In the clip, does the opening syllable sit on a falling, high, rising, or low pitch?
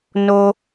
high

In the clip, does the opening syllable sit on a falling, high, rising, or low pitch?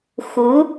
rising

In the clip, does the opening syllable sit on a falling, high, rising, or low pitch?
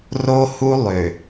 high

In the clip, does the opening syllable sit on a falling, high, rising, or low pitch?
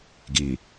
low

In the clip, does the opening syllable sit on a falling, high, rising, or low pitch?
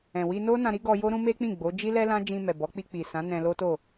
low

